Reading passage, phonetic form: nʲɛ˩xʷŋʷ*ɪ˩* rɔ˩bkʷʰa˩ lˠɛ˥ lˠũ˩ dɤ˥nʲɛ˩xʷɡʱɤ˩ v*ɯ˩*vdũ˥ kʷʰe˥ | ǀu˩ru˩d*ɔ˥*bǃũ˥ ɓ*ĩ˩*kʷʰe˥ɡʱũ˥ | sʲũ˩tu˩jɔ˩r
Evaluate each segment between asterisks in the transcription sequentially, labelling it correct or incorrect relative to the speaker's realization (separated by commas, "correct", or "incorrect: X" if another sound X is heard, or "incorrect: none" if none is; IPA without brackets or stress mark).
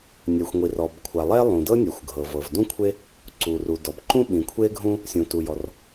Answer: incorrect: i˩, incorrect: ɤ˩, incorrect: ɔ˩, correct